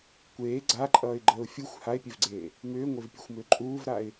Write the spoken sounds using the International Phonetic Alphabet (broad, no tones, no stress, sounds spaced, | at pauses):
kʷ eː ɡ͡ǀ a ǃʼ ʌː ɪ̯ ɡ͡ǃ əː ʊ̯ fʲ u xʷ h a ɪ̯ pʲ e v ɡ͡ǀ eː | m ʏː ŋʷ e v pʲ e xʷ m ʏː ǃʼ uː v ɾ a ɪ̯